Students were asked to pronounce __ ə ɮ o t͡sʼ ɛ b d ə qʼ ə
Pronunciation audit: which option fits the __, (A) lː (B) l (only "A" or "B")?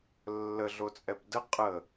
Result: A